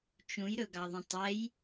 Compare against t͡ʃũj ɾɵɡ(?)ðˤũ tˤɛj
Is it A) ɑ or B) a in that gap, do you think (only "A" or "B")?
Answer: A